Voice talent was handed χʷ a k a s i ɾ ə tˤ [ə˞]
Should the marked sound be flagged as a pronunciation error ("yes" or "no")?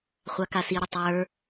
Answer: no